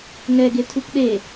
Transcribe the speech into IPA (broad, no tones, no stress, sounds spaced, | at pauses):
ŋ ɛ ɡ e tʰ u p ɗ e